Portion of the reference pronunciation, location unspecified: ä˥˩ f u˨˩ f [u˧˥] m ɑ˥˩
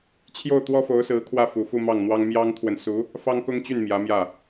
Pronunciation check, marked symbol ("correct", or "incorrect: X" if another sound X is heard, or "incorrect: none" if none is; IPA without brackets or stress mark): incorrect: u˥˧